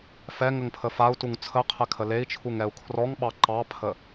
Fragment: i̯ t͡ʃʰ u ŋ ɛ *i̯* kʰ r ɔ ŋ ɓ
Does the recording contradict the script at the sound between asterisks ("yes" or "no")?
yes